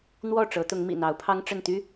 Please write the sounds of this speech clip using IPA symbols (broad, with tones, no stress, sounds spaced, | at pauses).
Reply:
n̪ w ɔ˥˨ ʈ͡ʂ ɤ˨˦ t̪ ʊ˨˦ ŋ m ḭ˨˩ n̪ ɑ˨˦ ʊ̯ pʰ ɑ˦ ŋ ʈ͡ʂ ə˥˨ n t̪ y˦